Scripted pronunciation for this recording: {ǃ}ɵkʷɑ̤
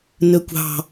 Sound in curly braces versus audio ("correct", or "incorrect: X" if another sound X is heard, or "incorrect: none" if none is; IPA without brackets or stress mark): incorrect: n